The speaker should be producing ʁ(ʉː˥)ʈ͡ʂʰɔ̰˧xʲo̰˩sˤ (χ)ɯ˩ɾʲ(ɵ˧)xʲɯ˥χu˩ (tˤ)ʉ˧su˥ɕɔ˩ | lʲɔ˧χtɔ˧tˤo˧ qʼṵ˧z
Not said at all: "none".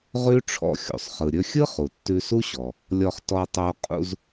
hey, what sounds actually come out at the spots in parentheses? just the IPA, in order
ʉ˥, χ, ɵ˧, tː

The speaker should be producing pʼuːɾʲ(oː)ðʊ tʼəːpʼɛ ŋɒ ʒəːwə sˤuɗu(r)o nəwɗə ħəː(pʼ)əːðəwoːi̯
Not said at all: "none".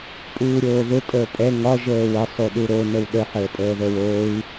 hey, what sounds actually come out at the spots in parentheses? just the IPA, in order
oː, ɾ, pʼ

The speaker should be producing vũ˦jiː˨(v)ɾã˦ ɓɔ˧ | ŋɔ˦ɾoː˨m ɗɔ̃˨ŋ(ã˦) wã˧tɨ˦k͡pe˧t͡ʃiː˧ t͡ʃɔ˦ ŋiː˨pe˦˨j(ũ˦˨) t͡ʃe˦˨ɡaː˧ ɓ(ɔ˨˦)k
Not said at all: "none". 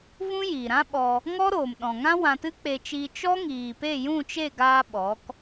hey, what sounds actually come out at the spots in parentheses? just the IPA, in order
none, ã˦, ũ˦˨, ɔ˨˦

